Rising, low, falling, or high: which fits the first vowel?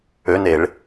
rising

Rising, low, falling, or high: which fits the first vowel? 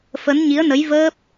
rising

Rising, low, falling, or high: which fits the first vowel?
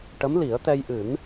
rising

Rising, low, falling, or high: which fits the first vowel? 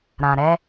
low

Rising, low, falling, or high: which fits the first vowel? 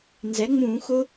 rising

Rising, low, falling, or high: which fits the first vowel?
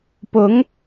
rising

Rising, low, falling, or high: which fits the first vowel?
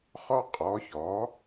high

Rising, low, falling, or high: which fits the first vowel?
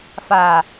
low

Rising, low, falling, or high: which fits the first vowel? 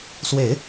low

